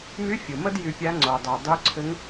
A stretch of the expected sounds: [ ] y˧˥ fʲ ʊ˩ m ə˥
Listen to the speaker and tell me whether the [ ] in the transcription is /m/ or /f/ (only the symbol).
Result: m